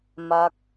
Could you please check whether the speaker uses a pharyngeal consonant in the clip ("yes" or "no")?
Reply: no